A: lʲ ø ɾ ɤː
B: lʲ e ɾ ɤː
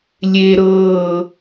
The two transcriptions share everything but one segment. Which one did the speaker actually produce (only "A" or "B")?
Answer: B